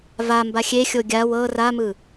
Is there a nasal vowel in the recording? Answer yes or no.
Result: no